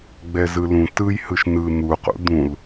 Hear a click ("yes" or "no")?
no